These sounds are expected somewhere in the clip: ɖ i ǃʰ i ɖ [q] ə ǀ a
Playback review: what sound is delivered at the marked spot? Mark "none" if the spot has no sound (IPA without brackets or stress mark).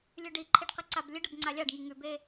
q